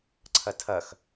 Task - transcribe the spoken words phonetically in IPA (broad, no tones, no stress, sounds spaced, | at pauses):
ǀʰ ʌ tʰ ʌ x